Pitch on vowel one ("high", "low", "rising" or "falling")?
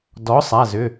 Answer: rising